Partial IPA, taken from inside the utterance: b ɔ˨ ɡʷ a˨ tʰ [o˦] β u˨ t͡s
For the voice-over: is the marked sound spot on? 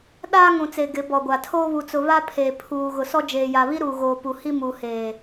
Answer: no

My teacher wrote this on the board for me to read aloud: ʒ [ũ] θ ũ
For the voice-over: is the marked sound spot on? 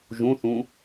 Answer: yes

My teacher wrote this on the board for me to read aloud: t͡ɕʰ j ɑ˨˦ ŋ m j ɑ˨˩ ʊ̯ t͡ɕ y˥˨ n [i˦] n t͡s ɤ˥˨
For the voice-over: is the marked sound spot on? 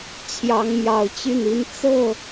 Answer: yes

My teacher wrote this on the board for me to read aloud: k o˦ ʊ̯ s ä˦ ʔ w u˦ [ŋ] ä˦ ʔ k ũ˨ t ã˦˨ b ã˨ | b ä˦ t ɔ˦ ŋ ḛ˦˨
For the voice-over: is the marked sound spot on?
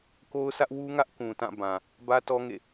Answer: yes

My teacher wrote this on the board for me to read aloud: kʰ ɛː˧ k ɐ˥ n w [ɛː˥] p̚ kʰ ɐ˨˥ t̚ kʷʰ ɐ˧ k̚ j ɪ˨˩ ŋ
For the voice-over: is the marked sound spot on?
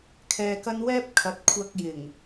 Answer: yes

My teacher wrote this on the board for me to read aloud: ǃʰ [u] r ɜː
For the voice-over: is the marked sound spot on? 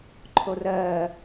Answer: no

